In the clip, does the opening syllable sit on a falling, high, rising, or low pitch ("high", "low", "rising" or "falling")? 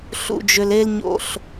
low